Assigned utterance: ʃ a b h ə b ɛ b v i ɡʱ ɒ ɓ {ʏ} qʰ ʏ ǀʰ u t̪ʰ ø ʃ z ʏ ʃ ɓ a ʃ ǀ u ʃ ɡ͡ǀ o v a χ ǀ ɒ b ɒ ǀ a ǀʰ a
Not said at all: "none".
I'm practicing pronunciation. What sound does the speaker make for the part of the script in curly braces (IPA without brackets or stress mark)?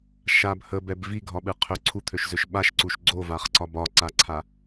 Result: ɨ